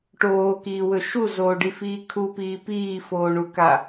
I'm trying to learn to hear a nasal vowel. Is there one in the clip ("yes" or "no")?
no